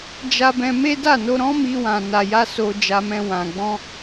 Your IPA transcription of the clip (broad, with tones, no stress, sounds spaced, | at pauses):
d͡ʒ a˧ b ɛ̃˧ m e˦ d a˦˨ n o˧ ɾ ɔ̃˦ m i˧ w ã˨ n a˨ j a˧ s o˧ d͡ʒ a˧ m ɛ̃˧ w ã˨ ɡ͡b ɔ̃˧